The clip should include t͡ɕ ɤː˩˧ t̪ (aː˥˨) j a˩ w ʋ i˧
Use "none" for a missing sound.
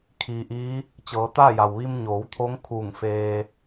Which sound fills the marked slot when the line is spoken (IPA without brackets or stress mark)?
aː˥˨